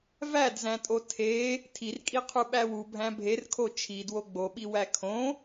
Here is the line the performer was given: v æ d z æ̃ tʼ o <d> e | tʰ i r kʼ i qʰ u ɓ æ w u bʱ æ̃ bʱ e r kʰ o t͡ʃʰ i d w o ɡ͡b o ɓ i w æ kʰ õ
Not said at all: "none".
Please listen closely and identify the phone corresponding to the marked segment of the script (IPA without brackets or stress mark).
tʰ